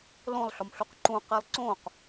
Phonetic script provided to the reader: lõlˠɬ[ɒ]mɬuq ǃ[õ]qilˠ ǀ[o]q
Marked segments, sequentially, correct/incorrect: correct, incorrect, incorrect

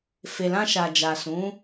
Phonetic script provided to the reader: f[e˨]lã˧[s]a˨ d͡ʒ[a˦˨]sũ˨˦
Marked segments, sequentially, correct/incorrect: correct, incorrect, incorrect

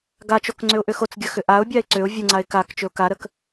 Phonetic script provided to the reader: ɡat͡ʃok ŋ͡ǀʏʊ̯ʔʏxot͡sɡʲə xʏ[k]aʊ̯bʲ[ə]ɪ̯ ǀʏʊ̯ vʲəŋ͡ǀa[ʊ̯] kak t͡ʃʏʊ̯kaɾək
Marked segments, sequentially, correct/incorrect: incorrect, incorrect, incorrect

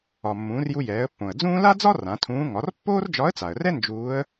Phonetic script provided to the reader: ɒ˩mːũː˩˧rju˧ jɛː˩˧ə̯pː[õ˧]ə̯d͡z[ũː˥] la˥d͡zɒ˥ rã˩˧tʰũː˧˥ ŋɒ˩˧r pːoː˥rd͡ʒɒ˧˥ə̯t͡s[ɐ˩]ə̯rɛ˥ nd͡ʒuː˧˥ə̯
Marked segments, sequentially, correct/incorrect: incorrect, correct, incorrect

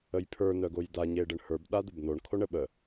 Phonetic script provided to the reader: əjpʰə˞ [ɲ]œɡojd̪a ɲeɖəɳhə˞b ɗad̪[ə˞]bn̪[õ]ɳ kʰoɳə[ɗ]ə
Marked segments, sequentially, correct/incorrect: incorrect, incorrect, incorrect, incorrect

